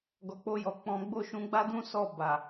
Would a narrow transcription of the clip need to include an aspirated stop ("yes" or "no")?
no